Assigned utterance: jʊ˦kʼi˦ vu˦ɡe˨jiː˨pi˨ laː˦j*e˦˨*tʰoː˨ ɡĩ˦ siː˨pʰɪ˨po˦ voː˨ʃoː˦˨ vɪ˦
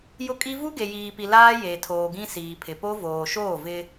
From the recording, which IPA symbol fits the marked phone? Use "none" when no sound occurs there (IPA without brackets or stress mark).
e˨